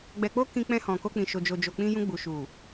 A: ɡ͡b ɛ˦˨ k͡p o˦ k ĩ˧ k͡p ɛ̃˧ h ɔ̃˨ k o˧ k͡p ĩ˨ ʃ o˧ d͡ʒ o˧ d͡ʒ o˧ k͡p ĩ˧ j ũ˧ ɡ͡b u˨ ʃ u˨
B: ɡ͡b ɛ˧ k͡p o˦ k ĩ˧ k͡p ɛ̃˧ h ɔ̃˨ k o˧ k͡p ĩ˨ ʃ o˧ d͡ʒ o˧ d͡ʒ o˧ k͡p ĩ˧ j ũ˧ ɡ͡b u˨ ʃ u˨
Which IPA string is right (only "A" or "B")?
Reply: B